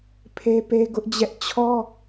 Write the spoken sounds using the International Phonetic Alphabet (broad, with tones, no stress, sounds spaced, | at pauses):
pʰ e˦ p e˦ ɡ ʊ˦ ʔ d͡ʑ ɛ˦ ʔ t͡ɕʰ ɔ˦